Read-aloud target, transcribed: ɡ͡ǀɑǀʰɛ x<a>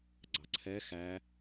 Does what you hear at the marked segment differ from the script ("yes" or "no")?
yes